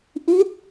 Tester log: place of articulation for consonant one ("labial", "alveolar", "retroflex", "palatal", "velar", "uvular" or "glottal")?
glottal